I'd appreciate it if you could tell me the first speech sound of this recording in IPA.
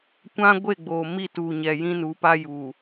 kʷ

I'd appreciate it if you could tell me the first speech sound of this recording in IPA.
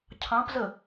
cʰ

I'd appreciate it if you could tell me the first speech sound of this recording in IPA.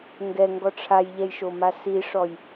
ŋ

